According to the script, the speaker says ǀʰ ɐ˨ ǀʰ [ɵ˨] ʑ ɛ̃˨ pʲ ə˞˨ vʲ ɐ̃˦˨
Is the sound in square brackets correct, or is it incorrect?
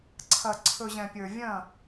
correct